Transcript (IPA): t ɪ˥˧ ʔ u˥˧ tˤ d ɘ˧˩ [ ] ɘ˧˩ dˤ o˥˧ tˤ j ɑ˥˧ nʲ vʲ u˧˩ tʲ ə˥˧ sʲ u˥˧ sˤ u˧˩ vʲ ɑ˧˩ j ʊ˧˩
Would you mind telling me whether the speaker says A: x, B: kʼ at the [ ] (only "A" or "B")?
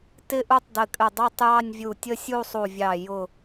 B